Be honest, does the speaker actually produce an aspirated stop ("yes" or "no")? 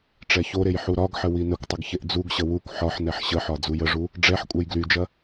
no